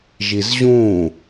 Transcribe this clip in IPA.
ʒizʑũ

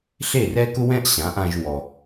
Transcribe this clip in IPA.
ɬe˥˩rɛ˥kʊ˥wɛ̃˥ʔ ɕã˩˥ʔã˧ʒwɔ˩

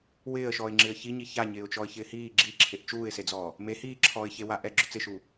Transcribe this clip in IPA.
wɪːə̯ʃɔːɪ̯ŋ͡ǁɪːə̯ çiɲi çaɲɪːʊ̯ t͡ʃɔə̯çɪːhiː ɡ͡ǁiǁʰeʔ t͡ʃuːɪ̯sed͡zɔː | me hiːǁʰɔːɪ̯ çewaʔɛ ɡ͡ǁʊt͡sɪʃu

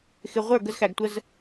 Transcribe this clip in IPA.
xɪ˨ʁʷə˞˦˨ ɡə˦zxæ˨ɡtʷə˦z

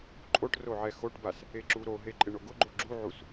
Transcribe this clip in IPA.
ǃʼoʈ roʕɛxoʈbas | eǁuɾoɦe ǃʼɪɳoɡʊɡ͡ǃo ɡ͡ǁuʕus

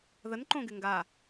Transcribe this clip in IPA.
ðənǃõɡɪ ŋɡa

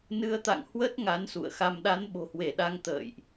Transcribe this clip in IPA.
nɨ˨˦ə̯t̪a̰˧˨ŋhwə˦˥t̚ ŋa˨˦nsṵ˧˨ə̯xa˧m ɗa˨˦nɓo̤˨˩hwe˧˩ɗa˧ŋ t̪ə̰ː˧˨jʔ

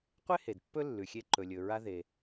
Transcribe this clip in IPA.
qʷe˥he˩d pːɵ˥lːʉ˩ xʲe˧ǃɵ˩lʲɵ˩ ɹa˧ ðe˩

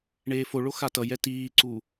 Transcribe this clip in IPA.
ɳeːfoɭo xatʌjɛ tiːǀu

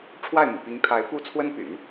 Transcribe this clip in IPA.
ʈ͡ʂʰwa˥˩ɪ̯mṵ˨˩pi˧˥ŋt̪ʰa˧˥ɪ̯ pu˥t͡sʰwə˥npy̰˨˩˦n

